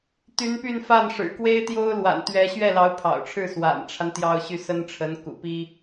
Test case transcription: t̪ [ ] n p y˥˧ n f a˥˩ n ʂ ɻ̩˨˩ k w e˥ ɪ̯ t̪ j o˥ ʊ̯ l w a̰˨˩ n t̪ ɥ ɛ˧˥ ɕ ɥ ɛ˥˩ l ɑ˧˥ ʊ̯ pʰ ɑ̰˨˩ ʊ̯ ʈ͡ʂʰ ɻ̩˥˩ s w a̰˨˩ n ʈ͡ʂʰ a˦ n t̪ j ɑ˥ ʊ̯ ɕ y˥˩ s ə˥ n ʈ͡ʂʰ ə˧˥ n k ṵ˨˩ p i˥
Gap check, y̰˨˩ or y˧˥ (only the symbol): y˧˥